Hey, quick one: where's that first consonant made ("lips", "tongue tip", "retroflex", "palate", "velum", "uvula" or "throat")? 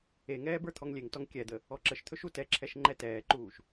velum